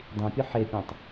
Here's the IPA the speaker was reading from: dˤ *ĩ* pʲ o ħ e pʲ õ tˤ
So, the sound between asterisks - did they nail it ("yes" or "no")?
yes